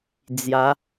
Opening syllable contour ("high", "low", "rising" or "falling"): rising